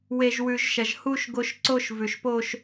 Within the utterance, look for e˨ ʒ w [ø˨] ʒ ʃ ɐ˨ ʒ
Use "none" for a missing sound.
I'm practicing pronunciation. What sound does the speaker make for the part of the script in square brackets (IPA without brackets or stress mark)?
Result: ʉ˨